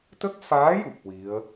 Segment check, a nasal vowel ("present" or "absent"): absent